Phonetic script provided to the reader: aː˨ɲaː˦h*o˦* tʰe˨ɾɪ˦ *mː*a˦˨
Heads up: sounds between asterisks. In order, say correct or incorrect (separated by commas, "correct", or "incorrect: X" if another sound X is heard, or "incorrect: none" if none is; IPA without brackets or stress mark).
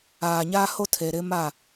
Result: correct, incorrect: m